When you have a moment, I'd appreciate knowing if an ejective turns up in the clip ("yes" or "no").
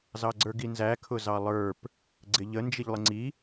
no